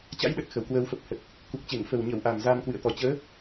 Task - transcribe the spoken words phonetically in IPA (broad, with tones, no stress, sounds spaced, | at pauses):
t͡ɕ a̰˧˥ j ɗ ə˨˩ t̚ x ə˧˩ w k w əː˧ w f ə˨˩ p̚ h ə˨˩ t̚ | k u˨˩ k̚ t͡ɕ e˧˩ ŋ f ə˨˩ w ɲ ə˧˩ w ʔ a˨˩ m z a˧ m k w ɨ̰˧˨ ə̯ t̪ ɔ˨˩ t͡ɕ əː˨˦